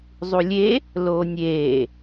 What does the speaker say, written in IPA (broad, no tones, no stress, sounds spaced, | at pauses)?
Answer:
zˤ u lʲ e | l oː nʲ eː